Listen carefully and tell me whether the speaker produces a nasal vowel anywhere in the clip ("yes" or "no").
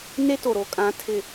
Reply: yes